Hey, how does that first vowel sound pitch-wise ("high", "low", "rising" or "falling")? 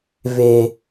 high